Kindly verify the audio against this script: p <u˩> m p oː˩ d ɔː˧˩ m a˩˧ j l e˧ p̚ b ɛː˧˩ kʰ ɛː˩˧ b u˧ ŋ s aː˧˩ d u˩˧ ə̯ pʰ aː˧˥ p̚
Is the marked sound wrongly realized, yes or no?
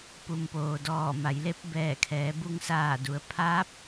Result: no